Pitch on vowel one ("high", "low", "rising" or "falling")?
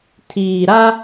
low